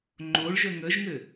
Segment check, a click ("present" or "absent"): present